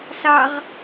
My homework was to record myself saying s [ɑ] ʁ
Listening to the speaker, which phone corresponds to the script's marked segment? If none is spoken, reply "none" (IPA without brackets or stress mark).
ɑ